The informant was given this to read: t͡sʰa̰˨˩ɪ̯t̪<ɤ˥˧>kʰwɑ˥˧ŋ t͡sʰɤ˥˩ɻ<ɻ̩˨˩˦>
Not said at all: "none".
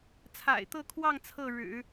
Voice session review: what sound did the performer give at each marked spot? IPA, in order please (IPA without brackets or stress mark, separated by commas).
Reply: ɤ˥˧, ɻ̩˨˩˦